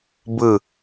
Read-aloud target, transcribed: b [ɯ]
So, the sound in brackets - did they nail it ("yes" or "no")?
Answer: yes